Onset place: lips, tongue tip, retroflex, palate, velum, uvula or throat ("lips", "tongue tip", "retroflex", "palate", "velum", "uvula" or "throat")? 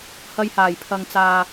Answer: throat